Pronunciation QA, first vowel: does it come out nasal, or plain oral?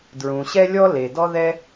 nasal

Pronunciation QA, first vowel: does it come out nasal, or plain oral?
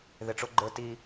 oral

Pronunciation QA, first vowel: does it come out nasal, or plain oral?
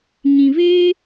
nasal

